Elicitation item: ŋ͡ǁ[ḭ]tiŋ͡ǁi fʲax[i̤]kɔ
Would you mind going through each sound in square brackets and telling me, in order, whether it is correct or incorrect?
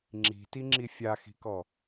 incorrect, correct

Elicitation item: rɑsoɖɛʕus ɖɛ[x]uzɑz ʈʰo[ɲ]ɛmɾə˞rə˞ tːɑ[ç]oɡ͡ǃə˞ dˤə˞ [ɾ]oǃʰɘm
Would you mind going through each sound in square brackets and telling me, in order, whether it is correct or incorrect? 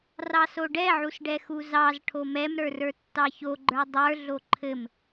correct, incorrect, correct, incorrect

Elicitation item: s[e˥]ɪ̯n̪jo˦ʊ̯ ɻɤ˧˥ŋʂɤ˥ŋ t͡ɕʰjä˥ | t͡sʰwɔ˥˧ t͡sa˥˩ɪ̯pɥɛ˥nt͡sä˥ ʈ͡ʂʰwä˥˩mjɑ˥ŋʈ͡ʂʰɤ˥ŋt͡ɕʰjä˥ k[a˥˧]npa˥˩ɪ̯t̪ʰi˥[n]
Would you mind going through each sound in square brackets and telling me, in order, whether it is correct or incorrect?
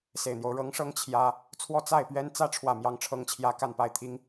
incorrect, correct, incorrect

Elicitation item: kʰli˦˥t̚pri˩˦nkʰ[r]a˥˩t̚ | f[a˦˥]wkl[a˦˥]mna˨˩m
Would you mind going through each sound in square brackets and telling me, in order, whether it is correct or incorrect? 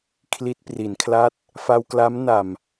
incorrect, incorrect, correct

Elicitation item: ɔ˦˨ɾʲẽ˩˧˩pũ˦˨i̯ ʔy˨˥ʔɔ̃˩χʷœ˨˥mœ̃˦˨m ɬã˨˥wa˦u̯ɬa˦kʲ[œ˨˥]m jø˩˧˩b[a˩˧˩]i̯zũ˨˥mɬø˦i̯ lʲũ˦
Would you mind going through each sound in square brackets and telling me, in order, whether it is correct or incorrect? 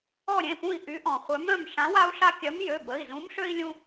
correct, incorrect

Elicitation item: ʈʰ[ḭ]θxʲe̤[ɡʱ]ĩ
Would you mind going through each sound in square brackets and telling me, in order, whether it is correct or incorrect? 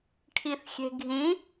incorrect, correct

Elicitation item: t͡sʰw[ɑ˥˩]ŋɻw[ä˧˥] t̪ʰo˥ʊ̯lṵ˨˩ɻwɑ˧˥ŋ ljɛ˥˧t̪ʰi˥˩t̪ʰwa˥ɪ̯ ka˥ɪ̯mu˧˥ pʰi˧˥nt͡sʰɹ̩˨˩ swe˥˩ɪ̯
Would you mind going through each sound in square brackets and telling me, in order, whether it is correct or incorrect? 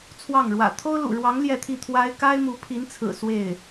correct, incorrect

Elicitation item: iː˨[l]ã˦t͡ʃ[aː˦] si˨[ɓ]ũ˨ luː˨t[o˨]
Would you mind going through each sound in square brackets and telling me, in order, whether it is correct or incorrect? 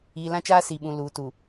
correct, correct, correct, incorrect

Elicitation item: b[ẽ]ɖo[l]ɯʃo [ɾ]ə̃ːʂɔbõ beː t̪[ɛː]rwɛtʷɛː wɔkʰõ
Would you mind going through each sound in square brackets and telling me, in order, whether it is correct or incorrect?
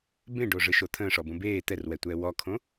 correct, incorrect, incorrect, incorrect

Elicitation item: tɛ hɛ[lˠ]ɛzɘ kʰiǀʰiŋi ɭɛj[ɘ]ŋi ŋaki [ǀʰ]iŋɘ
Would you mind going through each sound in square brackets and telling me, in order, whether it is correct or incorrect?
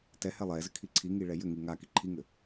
correct, correct, incorrect

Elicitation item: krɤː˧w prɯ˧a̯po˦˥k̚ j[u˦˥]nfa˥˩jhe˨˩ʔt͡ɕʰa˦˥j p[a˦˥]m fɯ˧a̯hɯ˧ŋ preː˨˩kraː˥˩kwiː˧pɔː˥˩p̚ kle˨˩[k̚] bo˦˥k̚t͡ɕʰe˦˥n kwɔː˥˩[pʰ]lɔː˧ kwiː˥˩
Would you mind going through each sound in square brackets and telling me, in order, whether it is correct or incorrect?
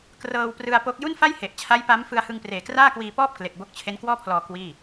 incorrect, correct, correct, correct

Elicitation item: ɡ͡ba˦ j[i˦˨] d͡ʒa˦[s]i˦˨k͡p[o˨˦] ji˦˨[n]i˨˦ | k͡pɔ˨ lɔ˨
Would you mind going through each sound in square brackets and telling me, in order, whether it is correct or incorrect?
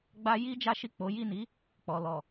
incorrect, incorrect, correct, correct

